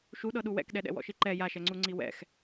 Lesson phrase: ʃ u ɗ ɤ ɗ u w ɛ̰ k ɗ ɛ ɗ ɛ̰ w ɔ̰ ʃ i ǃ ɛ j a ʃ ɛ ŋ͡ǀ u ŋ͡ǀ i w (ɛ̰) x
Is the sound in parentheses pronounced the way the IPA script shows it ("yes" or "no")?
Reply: yes